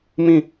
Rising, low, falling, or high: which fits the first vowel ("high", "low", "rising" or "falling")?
falling